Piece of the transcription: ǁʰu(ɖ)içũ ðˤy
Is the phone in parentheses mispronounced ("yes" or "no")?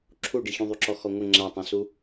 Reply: no